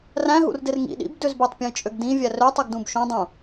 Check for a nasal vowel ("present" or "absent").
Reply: present